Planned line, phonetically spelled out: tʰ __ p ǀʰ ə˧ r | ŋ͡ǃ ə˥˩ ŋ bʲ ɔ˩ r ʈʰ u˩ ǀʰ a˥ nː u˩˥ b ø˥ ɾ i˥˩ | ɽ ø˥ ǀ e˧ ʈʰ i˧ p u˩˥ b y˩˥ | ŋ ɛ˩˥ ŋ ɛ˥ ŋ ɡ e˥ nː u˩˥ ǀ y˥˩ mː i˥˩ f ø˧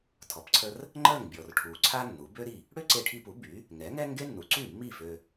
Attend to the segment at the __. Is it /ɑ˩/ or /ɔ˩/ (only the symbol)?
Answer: ɔ˩